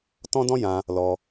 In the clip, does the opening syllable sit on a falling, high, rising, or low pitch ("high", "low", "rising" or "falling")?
high